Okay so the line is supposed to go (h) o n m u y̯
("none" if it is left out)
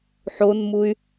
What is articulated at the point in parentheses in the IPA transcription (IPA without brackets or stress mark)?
ħ